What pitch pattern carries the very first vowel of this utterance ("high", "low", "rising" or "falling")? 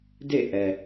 falling